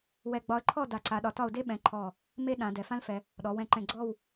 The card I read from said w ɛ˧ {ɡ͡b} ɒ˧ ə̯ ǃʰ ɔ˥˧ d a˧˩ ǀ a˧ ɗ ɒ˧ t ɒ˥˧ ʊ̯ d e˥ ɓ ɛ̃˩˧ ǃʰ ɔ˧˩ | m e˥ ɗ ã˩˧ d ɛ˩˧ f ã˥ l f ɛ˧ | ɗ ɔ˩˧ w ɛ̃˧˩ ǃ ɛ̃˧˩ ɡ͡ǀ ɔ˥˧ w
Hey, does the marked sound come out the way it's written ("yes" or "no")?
yes